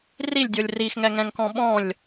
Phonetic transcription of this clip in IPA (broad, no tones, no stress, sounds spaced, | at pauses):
r i lʲ dʲ o lʲ r i x ŋ ɛ ŋ ɛ̃ ŋ k ɔ̃ ɓ ɔ̃ lʲ